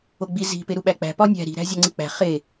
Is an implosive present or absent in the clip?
present